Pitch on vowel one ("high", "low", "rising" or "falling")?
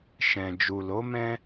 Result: low